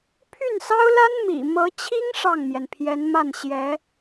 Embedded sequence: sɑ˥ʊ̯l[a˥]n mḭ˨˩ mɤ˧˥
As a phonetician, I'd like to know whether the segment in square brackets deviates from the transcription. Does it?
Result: no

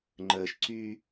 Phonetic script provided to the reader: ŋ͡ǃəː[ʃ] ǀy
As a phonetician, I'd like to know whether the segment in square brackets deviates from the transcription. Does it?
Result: no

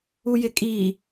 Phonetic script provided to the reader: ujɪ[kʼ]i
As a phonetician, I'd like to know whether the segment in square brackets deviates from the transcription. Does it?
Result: no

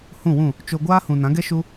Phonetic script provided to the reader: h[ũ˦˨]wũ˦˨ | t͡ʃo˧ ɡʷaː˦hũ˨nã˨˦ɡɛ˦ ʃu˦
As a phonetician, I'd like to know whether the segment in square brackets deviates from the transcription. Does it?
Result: no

